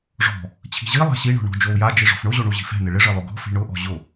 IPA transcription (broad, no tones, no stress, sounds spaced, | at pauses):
ʐ ɔ̤ | t͡ɕʰ i̤ ʑ i lˠ a̤ ɕ i ɳ ɔ̤ ɳ ɔ̤ d͡ʒ o u̯ j a d͡ʒ i ʐ ɔ̤ f ɳ ʊ ʑ o ɳ u ʑ i̤ f ɛ̤ n ɪ ɭ ɪ ʐ e lˠ ʊ ɡ ɔ̤ f i̤ ɳ ʊ ʔ ɔ̤ ʑ ʊ